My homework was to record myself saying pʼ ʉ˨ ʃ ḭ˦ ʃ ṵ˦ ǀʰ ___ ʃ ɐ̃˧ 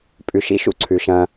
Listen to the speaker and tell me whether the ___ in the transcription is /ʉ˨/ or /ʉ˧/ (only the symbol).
ʉ˨